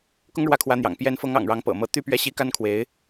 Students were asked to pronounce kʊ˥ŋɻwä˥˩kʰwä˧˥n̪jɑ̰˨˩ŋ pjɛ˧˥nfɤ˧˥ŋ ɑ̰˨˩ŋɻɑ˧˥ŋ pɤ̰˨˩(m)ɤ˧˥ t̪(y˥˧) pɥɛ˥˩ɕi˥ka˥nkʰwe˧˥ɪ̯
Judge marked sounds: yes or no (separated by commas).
yes, yes